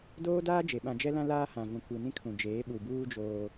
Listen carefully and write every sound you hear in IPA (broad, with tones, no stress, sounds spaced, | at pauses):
d oː˦ d aː˦ d͡ʒ e˨ ɓ ã˨ d͡ʒ ɛ˦ l ã˦ l aː˦ h ã˨ v ũ˨ kʷ i˨ n ĩ˦ kʰ ũ˨ d͡ʒ eː˨˦ ɓ u˨ b uː˦ d͡ʒ oː˦